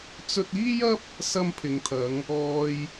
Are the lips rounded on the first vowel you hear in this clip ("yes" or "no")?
yes